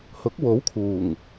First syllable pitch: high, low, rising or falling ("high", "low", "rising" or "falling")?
rising